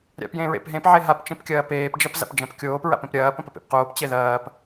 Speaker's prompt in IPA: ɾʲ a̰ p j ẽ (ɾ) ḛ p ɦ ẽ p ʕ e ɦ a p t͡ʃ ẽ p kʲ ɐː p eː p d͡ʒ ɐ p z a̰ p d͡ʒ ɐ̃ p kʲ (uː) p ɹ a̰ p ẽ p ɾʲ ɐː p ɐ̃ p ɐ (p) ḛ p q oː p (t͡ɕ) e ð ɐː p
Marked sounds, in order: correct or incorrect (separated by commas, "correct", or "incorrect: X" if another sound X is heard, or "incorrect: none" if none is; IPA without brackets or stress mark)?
incorrect: ɹ, incorrect: oː, correct, correct